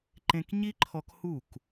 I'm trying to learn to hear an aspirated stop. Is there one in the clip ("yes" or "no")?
yes